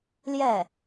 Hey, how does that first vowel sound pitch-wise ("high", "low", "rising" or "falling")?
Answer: falling